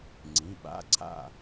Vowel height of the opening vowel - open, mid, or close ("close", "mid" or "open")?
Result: close